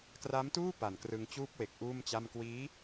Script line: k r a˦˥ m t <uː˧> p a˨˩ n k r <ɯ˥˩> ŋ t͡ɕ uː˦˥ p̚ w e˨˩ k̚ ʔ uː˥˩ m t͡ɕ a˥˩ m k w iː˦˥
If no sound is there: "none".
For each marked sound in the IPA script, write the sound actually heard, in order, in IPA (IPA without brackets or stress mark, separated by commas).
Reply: uː˥˩, ɯ˧